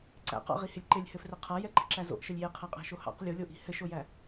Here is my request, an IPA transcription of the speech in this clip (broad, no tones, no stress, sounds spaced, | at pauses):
ǀ æ̰ q ɑ̰ ʁ i h ɪ lʲ ǃ ɪ lʲ h ɘ f r ɪ qʰ a j ɛ ǃ i̤ ǁ æ z o̰ ʔ ʃ ɘ lʲ j e qʰ æ qʼ æ̤ ʃ o h ɑ̰ q lʲ o lʲ o ʔ i̤ h ɘ ʃ o j æ